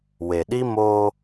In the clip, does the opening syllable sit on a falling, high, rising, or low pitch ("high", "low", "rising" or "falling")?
low